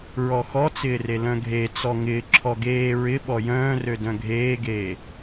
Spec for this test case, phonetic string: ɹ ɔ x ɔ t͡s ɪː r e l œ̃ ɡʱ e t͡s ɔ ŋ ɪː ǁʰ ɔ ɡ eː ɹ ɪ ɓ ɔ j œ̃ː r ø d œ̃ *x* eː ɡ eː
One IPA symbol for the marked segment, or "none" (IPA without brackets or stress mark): ɡʱ